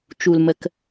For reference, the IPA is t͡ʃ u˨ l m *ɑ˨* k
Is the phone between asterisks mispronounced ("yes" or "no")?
yes